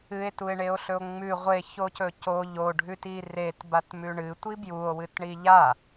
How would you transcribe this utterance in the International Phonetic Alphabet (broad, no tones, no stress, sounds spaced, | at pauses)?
ɨ e̯ t u e̯ ɳ e o̯ ɬ ɵ o̯ ŋ͡m ʉ ʁʷ e ç o c ɵ c o ʎ o ɖʱ ʉ t i r e t b a t m ʉ ɳ ɨ tʷ i b j u o̯ w ɨ t ɳ i ʎ a